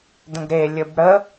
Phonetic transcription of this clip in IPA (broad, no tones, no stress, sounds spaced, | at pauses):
d ə̃ ɡ ɾ e lʲ ɘ b ɽ ə